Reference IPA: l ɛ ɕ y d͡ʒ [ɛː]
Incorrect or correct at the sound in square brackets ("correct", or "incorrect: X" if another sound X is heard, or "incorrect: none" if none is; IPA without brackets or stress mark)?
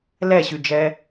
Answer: correct